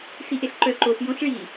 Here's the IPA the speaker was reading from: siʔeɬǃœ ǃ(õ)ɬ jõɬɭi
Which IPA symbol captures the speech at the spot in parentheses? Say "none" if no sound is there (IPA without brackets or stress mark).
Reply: o